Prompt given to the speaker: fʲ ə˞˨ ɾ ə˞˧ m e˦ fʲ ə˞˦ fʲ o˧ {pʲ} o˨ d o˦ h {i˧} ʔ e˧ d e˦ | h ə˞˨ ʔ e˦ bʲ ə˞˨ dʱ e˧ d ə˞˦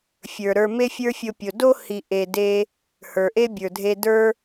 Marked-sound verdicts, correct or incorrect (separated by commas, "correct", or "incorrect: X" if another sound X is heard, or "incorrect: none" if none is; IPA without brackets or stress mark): correct, correct